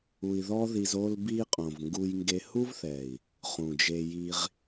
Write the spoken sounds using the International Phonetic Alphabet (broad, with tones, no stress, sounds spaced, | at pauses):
u˧ i̯ ð ɔ˦ ð i˧ z o˧ l b i˧ qʼ õ˨ v ŋ ɡ u˧ j ŋ ɡ e˧ h u˦ v θ ɛ˨ i̯ | χ ũ˨ d͡ʒ e˧ j i˧ ʁ